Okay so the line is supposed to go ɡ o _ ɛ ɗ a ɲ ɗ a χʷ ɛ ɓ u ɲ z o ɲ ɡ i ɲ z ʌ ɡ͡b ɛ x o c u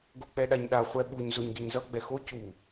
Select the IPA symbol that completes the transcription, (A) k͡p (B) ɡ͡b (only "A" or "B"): A